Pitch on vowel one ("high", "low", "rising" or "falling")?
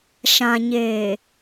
low